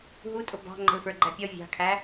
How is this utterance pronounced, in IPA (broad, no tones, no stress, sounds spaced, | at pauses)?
ɦ u tʼ ʊ b ɑ̤ ŋ͡ǃ ə̤ l f ə˞ ɡ͡ǃ æ pʲ ɔ vʲ ɑ̤ kʰ æ